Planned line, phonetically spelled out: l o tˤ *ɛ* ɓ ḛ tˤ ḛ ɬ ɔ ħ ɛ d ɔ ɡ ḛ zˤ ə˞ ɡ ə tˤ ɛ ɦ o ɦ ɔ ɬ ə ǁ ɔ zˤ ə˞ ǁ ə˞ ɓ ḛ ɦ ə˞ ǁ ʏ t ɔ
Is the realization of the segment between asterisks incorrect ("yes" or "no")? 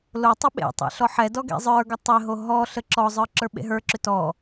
yes